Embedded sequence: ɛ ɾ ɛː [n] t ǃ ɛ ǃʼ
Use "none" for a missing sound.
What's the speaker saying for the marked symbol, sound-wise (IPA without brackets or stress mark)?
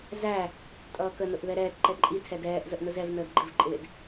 none